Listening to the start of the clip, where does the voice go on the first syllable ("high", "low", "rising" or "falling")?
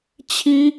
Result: high